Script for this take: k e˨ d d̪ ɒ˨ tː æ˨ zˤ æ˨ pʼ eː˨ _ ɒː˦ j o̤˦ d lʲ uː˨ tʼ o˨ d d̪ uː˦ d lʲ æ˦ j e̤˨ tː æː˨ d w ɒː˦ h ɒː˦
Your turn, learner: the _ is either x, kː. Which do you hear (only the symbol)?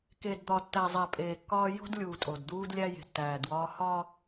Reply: kː